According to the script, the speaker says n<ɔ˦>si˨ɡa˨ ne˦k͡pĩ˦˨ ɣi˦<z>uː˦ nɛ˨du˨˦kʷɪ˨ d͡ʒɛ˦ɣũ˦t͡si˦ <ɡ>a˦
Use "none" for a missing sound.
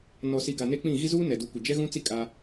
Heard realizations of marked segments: ɔ˨, z, kʼ

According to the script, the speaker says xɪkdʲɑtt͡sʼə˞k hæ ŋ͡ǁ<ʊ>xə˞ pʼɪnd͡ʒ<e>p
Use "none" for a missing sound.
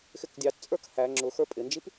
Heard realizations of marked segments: ʊ, i

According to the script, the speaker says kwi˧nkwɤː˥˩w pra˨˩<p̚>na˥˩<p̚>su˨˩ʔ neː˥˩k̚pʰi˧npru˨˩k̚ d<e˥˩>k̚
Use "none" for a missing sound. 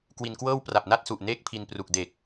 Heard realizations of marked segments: p̚, t̚, e˨˩

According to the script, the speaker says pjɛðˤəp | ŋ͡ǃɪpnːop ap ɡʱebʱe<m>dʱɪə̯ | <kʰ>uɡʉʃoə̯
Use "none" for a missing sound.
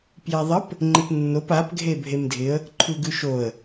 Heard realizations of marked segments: m, ǃʰ

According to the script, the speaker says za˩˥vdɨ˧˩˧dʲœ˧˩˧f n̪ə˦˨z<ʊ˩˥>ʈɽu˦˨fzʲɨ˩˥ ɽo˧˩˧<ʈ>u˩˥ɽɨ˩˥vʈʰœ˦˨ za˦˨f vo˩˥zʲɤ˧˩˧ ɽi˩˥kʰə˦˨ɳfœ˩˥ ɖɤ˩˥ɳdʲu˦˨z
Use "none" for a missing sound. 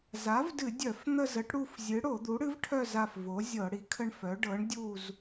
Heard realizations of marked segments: ə˩˥, d̪

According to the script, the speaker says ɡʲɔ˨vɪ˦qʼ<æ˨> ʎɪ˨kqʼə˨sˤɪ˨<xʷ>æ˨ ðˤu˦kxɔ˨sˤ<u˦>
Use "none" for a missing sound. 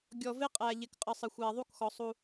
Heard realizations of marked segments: æ˨, xʷ, u˦

